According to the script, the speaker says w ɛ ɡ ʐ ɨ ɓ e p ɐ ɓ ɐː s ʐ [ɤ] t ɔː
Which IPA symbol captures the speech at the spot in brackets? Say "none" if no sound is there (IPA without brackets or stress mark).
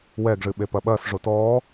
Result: o